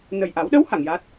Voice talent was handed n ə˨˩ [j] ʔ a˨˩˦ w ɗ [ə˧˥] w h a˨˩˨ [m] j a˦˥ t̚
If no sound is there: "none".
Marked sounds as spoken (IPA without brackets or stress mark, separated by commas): j, ə˧˥, ŋ